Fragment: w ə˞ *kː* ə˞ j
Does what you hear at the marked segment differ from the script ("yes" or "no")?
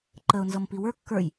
no